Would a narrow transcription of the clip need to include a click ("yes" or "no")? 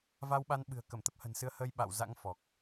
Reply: no